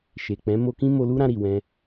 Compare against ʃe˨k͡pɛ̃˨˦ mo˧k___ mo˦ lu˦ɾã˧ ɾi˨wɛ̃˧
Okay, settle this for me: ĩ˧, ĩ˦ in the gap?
ĩ˦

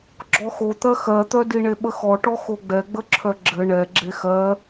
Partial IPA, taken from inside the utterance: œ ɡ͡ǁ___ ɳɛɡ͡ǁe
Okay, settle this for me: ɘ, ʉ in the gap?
ɘ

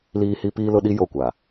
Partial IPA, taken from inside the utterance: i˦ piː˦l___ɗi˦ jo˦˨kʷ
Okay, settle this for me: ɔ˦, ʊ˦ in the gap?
ʊ˦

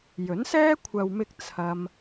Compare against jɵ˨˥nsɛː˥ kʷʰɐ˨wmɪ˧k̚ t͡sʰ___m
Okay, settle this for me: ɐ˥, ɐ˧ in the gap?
ɐ˧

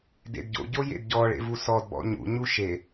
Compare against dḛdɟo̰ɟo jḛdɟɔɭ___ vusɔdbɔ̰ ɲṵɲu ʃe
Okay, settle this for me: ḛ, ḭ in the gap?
ḛ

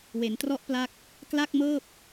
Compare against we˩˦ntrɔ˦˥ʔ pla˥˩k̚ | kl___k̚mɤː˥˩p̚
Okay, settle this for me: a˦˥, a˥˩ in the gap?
a˥˩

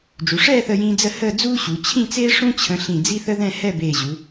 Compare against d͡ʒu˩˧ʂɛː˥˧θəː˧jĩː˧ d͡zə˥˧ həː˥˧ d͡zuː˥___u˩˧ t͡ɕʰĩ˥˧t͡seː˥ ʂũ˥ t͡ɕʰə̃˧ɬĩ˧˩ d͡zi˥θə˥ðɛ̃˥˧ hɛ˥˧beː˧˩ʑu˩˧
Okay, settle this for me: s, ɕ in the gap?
ɕ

